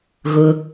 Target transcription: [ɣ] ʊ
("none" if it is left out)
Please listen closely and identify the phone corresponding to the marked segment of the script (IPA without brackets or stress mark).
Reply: ɣ